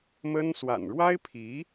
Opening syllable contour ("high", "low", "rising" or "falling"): high